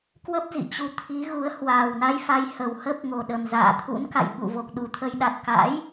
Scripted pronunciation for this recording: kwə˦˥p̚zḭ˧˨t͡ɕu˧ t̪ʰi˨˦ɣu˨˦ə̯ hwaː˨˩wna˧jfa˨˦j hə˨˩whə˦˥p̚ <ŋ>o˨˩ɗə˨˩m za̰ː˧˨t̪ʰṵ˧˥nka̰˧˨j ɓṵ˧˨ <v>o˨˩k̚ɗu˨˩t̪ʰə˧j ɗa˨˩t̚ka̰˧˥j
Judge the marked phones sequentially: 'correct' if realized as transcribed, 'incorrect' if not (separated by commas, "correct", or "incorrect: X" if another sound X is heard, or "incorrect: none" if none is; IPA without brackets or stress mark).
correct, correct